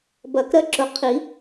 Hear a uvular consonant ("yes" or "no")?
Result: yes